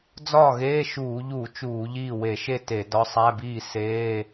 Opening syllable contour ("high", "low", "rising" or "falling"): falling